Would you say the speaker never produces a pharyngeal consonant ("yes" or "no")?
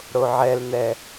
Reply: no